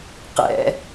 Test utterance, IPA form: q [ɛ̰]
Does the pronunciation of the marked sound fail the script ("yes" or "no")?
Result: no